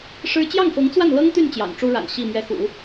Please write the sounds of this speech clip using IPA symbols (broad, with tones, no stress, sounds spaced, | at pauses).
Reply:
ʂ ɻ̩˥ t͡ɕ j ɑ˥˩ ŋ f ɤ˧˥ ŋ t͡s w a˥˩ n l ɤ˥ ŋ t̪ y˥˩ n t͡ɕ j ɑ̰˨˩ ŋ ʈ͡ʂ u˥ ɻ a̰˨˩ n ɕ i˥˩ m ɥ ɛ˧˥ x ṵ˨˩˦